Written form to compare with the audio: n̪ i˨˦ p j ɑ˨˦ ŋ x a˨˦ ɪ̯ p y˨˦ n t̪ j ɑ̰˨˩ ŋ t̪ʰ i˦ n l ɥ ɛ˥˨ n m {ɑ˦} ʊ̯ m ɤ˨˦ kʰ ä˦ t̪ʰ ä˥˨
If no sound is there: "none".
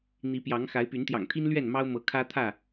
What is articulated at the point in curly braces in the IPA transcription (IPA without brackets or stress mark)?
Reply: ɑ˦